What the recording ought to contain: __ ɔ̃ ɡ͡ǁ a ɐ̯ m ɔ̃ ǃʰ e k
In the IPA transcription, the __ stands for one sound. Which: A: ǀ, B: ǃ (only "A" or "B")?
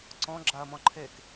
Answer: A